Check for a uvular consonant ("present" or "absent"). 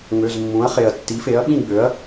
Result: present